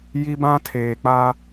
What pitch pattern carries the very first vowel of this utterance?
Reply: high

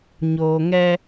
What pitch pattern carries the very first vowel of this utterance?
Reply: low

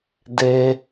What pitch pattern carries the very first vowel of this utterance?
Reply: high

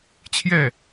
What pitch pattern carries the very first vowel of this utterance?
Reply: falling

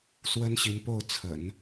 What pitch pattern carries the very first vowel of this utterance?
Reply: high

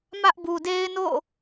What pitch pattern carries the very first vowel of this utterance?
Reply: high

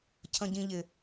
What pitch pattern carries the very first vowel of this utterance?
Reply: low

